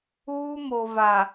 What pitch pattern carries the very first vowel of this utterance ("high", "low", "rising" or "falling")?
high